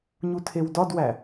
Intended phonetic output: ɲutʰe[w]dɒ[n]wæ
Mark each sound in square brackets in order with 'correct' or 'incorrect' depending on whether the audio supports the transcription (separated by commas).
correct, incorrect